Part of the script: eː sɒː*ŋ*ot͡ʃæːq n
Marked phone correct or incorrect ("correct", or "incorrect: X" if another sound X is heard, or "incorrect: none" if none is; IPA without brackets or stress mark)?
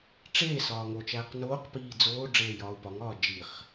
correct